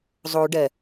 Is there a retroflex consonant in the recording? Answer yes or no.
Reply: yes